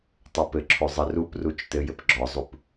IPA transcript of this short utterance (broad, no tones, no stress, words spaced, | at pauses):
tˤopɘǁʰo zˤɘruprut͡ʃ tɘjɘp ɡ͡ǁɔzˤup